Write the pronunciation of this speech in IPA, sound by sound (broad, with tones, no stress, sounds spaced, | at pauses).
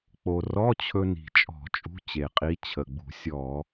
k͡p o˧ r ɔ˧˥˧ t͡ɕʰ ɵ˧ n i̤˨˩ t͡ʃʼ ɔ̤˧˩˧ t͡ʃʼ ṳ˧˥˧ t͡ɕ e˨˩ qʼ i˨˥ t͡ɕʰ ə˨˩ ɡ͡b ṳ˧˩˧ sʲ ɔ˧˩˧